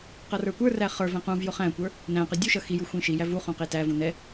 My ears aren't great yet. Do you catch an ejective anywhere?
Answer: no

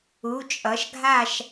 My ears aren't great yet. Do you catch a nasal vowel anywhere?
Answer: no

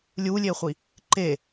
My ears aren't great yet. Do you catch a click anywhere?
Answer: yes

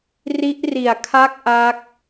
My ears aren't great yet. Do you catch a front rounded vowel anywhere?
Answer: no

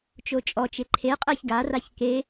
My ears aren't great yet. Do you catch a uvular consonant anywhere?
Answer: yes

